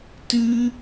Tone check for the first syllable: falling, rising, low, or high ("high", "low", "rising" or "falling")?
high